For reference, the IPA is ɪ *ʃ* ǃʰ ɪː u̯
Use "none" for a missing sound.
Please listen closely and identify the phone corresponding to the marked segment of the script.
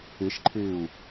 ʃ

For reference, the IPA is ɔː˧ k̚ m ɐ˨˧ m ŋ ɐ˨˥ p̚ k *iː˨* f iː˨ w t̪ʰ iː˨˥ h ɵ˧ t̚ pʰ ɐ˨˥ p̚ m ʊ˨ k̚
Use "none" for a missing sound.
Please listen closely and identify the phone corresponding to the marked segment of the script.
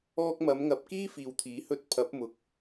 iː˥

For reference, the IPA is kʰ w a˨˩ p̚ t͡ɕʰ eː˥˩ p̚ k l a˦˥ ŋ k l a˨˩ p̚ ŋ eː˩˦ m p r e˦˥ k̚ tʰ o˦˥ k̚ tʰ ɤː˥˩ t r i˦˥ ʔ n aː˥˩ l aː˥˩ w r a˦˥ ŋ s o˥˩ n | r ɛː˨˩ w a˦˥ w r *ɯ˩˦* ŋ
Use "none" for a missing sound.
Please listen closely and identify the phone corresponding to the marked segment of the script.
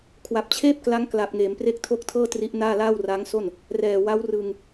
ɯ˧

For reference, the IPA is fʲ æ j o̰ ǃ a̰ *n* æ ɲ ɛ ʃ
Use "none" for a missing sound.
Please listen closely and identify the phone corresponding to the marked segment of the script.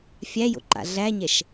ɮ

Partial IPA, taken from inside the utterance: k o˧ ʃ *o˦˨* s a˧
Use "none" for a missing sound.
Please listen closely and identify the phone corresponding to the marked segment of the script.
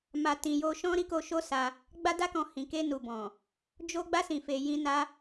o˦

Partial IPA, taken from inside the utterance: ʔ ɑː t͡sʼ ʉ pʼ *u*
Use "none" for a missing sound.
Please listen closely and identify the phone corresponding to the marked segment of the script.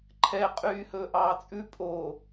o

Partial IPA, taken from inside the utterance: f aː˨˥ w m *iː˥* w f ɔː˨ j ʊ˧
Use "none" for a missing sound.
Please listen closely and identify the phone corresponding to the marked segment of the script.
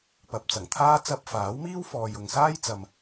iː˥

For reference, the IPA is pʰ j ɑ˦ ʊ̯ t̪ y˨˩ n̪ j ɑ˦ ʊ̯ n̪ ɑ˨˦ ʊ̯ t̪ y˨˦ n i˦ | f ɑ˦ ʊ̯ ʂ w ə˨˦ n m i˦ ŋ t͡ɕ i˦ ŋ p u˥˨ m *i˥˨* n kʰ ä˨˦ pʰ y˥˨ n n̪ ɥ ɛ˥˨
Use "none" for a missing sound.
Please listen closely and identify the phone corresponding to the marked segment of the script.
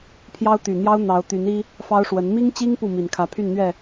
i˨˩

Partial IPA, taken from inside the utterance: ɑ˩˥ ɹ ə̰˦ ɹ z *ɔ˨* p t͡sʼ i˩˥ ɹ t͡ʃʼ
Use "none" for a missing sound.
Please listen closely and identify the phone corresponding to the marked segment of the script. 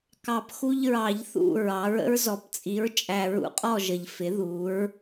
ɔ˨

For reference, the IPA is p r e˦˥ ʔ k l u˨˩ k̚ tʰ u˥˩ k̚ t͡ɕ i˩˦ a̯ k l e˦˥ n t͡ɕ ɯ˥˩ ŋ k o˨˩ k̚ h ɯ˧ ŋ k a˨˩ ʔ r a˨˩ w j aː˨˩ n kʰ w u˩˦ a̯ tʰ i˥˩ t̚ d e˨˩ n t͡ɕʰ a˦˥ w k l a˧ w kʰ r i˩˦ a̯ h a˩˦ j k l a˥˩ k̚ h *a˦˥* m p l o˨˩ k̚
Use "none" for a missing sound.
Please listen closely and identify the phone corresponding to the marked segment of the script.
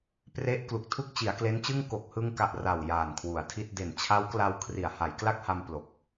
a˧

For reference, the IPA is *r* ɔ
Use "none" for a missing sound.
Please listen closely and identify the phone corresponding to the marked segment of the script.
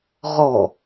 ʁ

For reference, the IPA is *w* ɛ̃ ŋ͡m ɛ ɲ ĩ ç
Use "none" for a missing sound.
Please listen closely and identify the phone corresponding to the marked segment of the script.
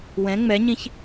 w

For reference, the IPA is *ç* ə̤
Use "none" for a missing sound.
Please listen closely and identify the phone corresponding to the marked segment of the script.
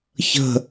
ç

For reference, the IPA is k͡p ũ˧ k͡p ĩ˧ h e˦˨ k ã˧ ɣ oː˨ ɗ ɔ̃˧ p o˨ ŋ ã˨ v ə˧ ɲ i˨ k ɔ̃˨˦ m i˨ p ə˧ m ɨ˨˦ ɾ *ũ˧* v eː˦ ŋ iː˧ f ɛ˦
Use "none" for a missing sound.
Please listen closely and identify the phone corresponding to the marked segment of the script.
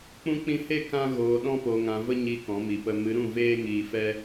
ũ˦˨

